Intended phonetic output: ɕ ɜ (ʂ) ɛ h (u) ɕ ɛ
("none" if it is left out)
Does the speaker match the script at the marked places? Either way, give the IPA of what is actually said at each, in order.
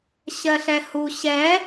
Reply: ɬ, u

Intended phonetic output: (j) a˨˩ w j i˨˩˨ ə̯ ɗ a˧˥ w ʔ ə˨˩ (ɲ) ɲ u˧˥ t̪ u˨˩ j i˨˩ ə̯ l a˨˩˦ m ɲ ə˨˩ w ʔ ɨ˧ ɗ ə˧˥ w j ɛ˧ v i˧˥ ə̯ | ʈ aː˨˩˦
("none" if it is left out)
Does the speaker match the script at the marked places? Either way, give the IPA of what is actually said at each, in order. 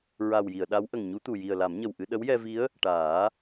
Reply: ɹ, ŋ

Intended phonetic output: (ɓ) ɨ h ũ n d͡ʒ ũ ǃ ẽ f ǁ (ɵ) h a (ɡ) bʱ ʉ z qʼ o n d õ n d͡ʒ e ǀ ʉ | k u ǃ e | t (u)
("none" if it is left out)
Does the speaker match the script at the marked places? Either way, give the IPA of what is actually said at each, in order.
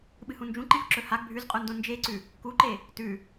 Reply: ɓ, ɵ, ɡ, ʉ

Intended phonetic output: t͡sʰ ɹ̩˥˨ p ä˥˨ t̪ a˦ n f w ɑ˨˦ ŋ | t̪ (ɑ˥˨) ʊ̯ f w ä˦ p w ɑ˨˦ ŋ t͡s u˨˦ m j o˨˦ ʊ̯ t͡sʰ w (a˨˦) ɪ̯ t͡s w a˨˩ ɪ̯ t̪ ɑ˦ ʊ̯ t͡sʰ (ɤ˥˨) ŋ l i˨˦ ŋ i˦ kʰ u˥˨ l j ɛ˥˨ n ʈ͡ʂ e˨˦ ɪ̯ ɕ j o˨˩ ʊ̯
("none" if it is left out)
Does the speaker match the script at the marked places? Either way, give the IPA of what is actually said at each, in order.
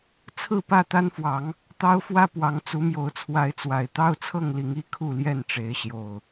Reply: ɑ˦, a˨˦, ɤ˥˨

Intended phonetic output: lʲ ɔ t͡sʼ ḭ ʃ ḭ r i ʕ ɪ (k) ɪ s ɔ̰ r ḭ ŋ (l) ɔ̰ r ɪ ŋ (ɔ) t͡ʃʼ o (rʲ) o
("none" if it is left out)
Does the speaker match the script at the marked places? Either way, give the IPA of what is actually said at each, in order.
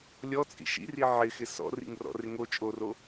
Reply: x, r, o, r

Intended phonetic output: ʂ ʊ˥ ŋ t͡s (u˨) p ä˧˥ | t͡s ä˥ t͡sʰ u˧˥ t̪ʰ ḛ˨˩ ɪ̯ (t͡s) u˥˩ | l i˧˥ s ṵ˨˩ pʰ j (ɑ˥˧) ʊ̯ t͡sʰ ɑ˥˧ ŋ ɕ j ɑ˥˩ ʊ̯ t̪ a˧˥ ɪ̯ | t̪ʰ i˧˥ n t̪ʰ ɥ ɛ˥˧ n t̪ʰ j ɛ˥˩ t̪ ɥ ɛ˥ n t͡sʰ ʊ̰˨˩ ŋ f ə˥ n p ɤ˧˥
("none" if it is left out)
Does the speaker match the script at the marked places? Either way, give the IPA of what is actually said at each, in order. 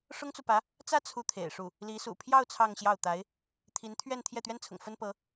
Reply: u˨, ʂ, ɑ˥˧

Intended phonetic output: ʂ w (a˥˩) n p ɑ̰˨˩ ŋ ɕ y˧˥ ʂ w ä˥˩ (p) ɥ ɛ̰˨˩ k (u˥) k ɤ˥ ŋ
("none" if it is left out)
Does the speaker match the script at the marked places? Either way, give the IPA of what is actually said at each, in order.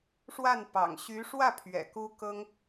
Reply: a˥˩, pʰ, u˥

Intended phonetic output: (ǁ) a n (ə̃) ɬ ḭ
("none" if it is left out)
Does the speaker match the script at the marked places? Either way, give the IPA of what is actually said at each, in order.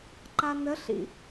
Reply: ǃ, ə

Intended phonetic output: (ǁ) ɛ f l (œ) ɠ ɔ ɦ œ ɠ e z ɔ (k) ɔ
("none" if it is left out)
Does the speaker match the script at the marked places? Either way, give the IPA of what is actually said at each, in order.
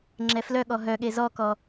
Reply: ŋ͡ǁ, œ, k

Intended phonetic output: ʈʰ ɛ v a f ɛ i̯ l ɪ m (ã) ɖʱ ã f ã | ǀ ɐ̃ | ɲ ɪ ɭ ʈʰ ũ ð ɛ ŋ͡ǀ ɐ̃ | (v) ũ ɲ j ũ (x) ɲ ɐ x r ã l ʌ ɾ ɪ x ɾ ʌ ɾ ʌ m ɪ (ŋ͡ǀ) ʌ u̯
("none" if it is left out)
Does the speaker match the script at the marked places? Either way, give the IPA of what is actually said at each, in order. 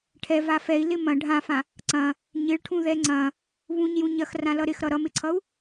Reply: ɐ̃, β, none, ǀʰ

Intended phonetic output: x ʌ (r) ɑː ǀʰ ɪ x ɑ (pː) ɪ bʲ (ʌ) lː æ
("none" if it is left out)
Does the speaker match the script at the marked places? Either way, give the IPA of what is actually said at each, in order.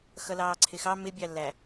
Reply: l, m, ɑ

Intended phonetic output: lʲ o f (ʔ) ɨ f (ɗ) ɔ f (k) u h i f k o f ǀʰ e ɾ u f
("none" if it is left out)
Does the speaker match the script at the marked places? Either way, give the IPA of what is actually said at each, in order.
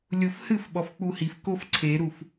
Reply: h, ɓ, k͡p

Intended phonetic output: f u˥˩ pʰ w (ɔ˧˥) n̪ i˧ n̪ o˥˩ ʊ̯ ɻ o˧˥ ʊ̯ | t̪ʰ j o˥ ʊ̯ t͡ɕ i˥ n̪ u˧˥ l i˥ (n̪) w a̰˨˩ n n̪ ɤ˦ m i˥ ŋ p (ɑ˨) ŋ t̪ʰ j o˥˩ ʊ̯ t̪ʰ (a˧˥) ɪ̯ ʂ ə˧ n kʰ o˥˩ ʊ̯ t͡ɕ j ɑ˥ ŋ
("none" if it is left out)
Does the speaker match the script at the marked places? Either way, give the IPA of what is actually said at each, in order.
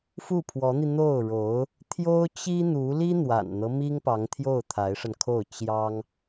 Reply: ɔ˧˥, n̪, ɑ˧˥, a˧˥

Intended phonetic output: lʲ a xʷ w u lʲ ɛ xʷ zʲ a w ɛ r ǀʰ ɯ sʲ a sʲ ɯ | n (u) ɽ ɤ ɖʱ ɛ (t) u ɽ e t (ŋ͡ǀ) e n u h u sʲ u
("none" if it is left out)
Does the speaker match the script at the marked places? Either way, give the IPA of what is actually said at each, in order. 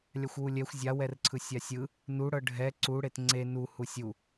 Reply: u, ǀ, ŋ͡ǀ

